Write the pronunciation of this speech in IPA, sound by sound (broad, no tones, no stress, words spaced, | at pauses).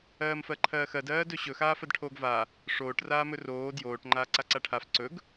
ɜːmfɜǃʰɜːxɜd ɜːdɵɕɵ xaːfɜdʈʰoːɡva | ʂoːʈ raːmɵroː djoːʈ ŋ͡ǃaːǀaǀaʈʰaf ǀɵɡ